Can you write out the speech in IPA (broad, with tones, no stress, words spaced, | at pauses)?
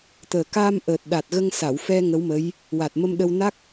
t̪əː˨˩ kaː˧mʔəː˨˩t̚ɗa˨˩t̚ ɣə˧ŋsa˨˩˨wfɛ˧ ŋə˧˥wmə˧˥j | wa˨˩t̚mə˧mɗə˧w na˦˥k̚